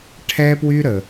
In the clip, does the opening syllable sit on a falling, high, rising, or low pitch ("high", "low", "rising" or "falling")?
high